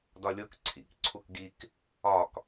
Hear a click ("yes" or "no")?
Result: yes